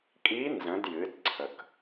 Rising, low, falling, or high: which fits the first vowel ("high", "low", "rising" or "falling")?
rising